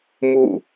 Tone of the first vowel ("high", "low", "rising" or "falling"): falling